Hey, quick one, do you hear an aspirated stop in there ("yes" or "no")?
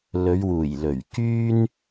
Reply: no